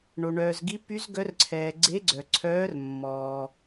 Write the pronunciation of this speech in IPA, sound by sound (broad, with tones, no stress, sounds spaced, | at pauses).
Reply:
ɳ o˩ ɳ œː˩ z ɡ i˨˦ p y˨˦ z ɡ œ˨˦ r ǀʰ ɛː˩ ɡ͡ǀ e˨˦ ɡ͡ǀ œ˩ ǀʰ œː˨˦ r mː ɔː˩